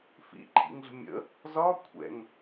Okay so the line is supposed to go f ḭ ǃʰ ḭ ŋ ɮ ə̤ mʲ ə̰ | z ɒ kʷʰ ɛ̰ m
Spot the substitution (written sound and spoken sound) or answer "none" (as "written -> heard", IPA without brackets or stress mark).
m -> ŋ